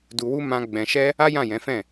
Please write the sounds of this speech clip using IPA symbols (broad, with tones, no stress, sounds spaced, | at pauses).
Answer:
d u˧ w u˦ m ã˦ ɡ͡b ɛ̃˧ ʃ ɛ˦ | a˦ j ã˦˨ j ɛ̃˨˦ f ɛ̃˦˨